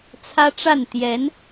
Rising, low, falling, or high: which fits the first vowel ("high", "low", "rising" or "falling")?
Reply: high